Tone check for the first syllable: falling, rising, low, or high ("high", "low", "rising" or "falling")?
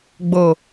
low